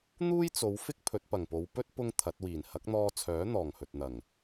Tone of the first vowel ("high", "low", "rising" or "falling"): high